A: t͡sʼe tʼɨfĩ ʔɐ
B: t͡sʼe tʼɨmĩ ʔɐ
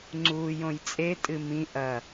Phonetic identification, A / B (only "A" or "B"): B